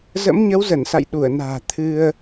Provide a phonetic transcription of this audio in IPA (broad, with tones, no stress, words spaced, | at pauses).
zə̰˧˥mɲə˨˦wzə˧˩nsa̰˧˨j ɗu˧˩ə̯na̤ː˨˩ t̪ʰɨ˧ə̯